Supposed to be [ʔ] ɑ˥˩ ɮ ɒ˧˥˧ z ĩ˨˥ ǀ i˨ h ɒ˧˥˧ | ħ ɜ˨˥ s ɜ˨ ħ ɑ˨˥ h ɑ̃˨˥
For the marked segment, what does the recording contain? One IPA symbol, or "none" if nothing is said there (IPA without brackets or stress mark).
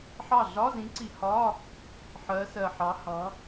ħ